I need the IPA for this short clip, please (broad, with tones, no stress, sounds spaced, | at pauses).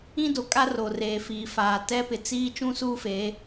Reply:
ĩ˦ d o˨ kʼ a˦ r o˨ r eː˨ f iː˨ f aː˨ t ɛ˦ p ɪ˨ t͡s iː˦ t͡ʃ ũ˦ s uː˦ f eː˨˦